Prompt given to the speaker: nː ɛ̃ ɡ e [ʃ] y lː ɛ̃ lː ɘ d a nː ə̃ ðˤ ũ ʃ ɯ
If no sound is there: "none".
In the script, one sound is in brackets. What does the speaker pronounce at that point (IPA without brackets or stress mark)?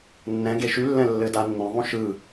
ʃ